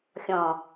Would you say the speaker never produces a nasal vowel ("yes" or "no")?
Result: no